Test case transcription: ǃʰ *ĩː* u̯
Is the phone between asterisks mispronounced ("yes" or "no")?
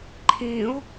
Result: no